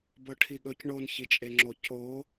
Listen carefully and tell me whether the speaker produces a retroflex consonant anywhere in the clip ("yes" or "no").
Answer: yes